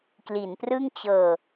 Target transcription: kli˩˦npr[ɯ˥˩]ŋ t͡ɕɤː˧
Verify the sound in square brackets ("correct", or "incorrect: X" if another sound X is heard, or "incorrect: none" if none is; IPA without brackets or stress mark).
correct